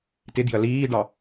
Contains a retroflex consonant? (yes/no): yes